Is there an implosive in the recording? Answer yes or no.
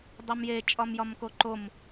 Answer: no